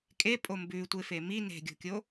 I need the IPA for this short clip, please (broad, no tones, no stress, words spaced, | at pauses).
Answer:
kʼepʼo mbʉtʷe femi ne̤ɡʲo̤kʲo